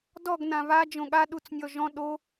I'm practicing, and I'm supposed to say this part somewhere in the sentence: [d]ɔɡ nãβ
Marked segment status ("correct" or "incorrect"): correct